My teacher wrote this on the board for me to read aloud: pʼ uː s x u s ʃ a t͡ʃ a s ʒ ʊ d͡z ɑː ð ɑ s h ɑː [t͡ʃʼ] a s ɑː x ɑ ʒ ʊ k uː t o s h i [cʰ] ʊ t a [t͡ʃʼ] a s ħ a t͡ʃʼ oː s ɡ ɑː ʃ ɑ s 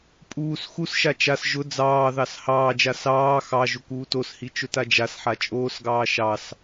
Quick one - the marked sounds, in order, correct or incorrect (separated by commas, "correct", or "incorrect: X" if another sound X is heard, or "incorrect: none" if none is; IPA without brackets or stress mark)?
incorrect: d͡ʒ, incorrect: t͡ʃ, incorrect: d͡ʒ